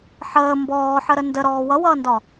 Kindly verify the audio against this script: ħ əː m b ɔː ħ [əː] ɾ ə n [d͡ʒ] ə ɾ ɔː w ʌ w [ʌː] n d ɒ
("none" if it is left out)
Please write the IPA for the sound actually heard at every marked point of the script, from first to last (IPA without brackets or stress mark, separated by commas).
ə, d, ʌː